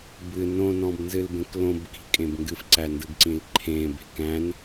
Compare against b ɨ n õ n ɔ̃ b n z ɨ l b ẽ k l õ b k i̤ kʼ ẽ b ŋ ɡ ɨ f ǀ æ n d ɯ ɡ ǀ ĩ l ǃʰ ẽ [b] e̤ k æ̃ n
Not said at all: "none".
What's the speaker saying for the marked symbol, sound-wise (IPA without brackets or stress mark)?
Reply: b